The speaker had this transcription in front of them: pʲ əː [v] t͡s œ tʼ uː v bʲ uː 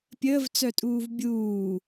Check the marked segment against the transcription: correct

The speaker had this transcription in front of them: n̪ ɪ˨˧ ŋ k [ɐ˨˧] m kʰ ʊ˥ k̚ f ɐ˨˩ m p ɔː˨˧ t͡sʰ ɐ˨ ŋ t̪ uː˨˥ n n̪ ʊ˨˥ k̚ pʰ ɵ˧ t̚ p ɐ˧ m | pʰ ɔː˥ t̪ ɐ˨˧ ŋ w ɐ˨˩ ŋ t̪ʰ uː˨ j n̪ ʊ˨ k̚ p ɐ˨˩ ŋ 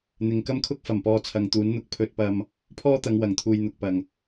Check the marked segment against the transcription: incorrect: ɐ˥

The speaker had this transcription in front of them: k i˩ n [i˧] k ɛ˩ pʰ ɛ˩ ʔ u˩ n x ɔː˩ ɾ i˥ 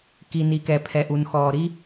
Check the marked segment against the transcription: incorrect: i˩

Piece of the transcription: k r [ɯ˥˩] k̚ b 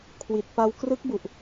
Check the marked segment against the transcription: incorrect: ɯ˦˥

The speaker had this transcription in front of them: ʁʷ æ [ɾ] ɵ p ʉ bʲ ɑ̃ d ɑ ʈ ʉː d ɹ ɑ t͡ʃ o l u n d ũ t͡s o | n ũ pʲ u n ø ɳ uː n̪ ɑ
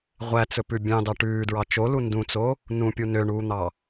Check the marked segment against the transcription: incorrect: t͡s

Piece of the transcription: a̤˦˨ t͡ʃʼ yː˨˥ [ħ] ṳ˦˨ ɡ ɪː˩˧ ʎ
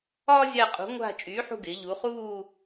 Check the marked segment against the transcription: correct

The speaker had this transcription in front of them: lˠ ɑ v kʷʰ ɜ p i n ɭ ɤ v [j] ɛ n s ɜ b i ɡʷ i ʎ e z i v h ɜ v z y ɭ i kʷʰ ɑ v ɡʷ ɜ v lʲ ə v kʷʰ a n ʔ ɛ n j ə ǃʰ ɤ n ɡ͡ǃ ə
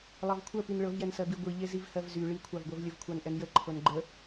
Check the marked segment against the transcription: correct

